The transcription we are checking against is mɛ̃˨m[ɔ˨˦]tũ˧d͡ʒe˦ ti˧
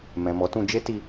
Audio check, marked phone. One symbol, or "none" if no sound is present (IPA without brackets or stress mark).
ɔ˨˦